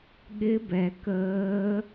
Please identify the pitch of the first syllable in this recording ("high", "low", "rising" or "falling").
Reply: rising